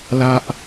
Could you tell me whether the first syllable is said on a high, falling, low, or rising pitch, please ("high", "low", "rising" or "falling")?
high